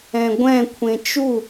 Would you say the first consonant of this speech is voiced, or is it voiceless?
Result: voiced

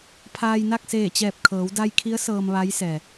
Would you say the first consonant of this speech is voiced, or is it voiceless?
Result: voiceless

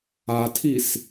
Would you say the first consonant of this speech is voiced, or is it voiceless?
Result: voiceless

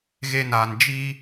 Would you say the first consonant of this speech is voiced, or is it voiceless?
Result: voiced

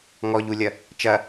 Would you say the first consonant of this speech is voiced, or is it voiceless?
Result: voiced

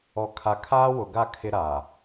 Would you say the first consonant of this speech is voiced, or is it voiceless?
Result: voiceless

